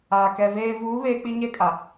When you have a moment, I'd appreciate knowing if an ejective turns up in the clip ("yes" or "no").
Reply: yes